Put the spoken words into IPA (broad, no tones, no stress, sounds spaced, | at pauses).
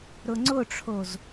ɾ ʊ ŋ͡ǀ ʊ ʈ͡ʂʰ o z